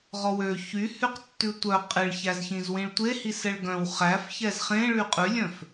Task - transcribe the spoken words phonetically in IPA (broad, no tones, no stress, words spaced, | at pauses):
ʁɔwø çyhyqtːʉ tʷœ qʼeɭçæzçĩz wĩɭtʷe hisɛɭɡœ̃w χæf çɛzχẽ ɭyqʼʉlʲœ̃f